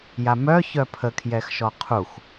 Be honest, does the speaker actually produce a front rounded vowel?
yes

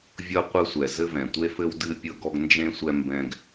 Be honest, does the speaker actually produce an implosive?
no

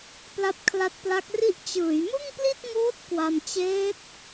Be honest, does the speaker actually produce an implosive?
no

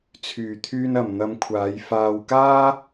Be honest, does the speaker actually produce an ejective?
no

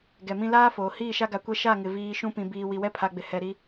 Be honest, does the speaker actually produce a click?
no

